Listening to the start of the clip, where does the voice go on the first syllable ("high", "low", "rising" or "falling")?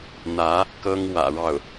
rising